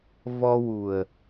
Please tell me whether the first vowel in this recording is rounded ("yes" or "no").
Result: yes